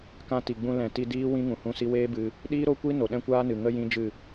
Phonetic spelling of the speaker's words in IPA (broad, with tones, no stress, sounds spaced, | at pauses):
k ã˧ t i˨ ɡ͡b ũ˧ l ɛ̃˨ t i˧ d iː˦ w ĩ˦ ŋ ũ˨ h ũ˦˨ s i˦ w eː˦ b ɨ˧ | ɗ iː˦ ɾ o˦ kʷ i˦ n o˨ ɗ ɛ̃˦ kʷ aː˦ n ɨ˨ ŋ ə˦ j ĩ˦ d͡ʒ ɨ˦˨